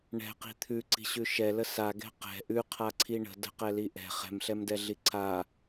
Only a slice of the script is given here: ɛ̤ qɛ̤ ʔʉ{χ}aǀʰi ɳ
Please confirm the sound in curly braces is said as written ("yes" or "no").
no